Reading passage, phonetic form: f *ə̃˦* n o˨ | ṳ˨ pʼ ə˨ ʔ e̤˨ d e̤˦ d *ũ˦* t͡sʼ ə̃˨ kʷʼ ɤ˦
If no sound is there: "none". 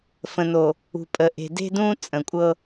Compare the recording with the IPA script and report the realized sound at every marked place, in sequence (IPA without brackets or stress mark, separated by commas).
ə̃˨, ũ˦